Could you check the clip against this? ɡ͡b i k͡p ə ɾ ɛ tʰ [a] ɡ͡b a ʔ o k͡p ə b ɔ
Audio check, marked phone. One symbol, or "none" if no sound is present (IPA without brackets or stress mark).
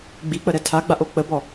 a